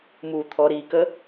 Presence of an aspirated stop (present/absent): present